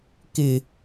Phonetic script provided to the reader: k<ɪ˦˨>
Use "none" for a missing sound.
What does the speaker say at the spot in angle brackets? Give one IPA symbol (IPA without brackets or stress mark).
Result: ɪ˨